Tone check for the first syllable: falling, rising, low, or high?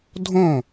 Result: falling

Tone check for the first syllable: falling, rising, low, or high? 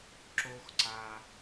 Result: high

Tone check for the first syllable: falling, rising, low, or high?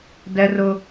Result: high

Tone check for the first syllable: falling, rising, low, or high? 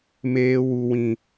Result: high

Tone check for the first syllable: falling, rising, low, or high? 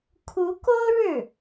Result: rising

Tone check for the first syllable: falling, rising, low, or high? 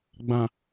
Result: low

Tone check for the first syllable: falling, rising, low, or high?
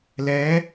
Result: rising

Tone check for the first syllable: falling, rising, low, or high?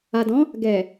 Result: low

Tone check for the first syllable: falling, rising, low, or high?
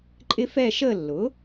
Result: high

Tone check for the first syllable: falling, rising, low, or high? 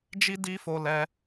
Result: high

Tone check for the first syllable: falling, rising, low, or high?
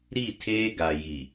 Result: falling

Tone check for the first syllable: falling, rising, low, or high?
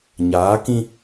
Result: rising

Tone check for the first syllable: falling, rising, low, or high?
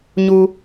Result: low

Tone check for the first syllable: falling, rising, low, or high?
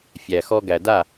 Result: low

